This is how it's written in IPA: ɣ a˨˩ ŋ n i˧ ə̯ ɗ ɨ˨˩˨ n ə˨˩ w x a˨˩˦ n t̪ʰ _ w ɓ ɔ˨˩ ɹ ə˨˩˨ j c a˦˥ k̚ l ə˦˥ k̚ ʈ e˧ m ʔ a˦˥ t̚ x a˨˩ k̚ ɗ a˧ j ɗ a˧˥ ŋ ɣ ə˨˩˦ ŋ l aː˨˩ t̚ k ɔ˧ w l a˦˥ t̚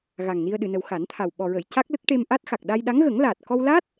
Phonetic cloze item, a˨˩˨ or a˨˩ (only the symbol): a˨˩